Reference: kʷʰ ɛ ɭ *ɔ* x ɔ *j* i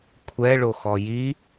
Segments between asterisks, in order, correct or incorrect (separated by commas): incorrect, correct